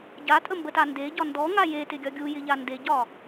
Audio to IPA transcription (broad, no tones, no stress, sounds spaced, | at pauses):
ɟ a tʼ ə m b ə t a n d e ɟ ɒ n d ɔ ŋ a j e t ɪ ɡʲ ɒ ɡʲ u j ɪ ʎ a n d e ɟ ɒ